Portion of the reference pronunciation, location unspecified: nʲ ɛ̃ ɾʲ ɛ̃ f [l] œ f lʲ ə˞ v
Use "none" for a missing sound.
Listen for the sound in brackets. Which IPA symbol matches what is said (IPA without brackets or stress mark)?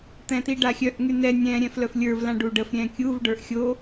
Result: l